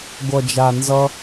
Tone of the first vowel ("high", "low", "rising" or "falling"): low